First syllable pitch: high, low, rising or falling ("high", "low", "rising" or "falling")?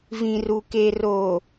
low